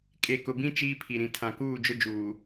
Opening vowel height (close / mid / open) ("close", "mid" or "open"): mid